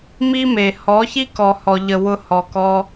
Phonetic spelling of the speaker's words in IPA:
m i˦ m e˨ h ɔ˨˦ ç i˦ k ɔ˨ h ɔ˨ ʎ ə˨ w ʊ˧ h ɔ˨ k ɔ˧

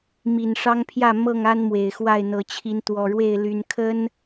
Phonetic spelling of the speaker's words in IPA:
m i˨˩ n ʂ ɑ˦ ŋ pʰ j ä˥˨ m ɤ˥˨ ŋ a˦ n m w e˨˩ ɪ̯ x w a˥˨ ɪ̯ n̪ ɤ˨˦ t͡ɕʰ i˨˦ n t̪ w ɔ˨˩ ɻ w e˥˨ ɪ̯ l y˨˩ n kʰ ə˦ n

